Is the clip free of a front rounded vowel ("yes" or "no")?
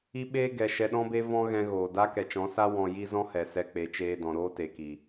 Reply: yes